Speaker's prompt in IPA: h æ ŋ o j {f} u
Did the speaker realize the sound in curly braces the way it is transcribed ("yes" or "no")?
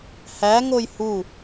no